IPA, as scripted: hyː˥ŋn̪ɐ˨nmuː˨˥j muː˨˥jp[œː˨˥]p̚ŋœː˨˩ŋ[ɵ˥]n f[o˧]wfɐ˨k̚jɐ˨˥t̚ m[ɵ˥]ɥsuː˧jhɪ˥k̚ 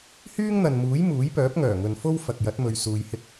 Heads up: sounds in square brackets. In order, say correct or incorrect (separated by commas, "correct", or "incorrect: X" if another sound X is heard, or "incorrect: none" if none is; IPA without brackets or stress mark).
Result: correct, incorrect: ɵ˨, incorrect: o˥, incorrect: ɵ˧